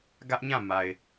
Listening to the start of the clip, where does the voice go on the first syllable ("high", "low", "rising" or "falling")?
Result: high